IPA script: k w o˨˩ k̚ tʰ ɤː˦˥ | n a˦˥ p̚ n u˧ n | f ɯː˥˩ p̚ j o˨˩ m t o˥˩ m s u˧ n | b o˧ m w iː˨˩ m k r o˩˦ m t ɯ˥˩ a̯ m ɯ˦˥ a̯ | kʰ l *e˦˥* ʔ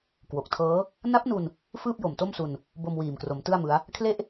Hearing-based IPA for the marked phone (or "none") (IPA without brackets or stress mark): e˥˩